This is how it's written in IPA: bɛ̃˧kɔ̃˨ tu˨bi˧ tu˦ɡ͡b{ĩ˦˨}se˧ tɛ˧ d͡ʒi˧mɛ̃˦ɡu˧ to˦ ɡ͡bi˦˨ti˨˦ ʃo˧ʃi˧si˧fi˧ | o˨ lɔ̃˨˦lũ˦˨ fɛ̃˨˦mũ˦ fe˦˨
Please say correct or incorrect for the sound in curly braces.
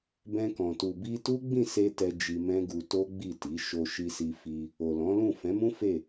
correct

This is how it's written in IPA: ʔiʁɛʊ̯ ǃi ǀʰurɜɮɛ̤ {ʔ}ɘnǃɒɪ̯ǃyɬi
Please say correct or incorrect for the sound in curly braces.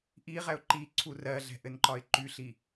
correct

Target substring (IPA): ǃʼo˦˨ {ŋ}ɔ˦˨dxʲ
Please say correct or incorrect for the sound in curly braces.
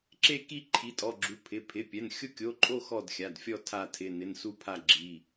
incorrect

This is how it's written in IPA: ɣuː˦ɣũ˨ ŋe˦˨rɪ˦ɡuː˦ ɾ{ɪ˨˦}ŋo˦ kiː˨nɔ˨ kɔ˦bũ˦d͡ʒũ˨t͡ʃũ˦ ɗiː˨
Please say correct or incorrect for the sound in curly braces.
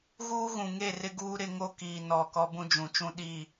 incorrect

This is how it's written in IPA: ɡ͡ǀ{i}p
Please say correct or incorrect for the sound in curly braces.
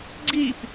correct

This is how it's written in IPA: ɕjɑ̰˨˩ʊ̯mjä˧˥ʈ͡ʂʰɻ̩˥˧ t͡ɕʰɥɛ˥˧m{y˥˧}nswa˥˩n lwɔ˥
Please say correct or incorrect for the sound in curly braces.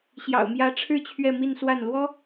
incorrect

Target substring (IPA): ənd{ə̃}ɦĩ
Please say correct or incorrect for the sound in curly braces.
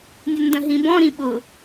correct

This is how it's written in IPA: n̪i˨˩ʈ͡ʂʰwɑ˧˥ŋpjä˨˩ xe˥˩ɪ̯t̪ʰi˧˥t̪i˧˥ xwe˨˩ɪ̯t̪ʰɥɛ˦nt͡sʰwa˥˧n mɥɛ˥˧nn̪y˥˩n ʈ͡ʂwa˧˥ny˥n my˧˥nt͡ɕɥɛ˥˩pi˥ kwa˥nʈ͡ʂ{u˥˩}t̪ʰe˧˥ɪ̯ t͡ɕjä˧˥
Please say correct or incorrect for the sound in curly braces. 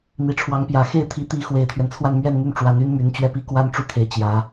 correct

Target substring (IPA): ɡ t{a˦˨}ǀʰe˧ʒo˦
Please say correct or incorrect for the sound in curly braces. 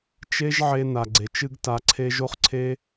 incorrect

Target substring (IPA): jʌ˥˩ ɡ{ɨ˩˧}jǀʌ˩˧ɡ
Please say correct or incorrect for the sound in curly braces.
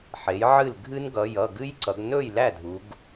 incorrect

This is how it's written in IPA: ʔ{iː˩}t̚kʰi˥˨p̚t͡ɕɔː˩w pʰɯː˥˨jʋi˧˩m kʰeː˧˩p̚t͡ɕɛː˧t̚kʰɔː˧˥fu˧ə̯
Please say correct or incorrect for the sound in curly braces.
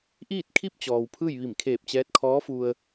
incorrect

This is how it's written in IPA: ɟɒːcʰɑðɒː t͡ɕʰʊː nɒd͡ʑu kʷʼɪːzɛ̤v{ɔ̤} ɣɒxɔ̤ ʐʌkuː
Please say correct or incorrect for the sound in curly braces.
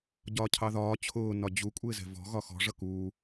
correct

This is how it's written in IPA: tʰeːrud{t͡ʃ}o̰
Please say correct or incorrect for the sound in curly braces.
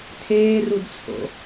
incorrect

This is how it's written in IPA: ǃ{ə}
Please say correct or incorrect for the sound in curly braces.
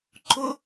incorrect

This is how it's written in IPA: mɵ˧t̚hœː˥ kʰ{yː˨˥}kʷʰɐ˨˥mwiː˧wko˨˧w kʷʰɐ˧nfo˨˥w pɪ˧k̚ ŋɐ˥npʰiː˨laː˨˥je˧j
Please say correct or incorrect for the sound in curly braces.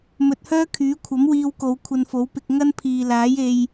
correct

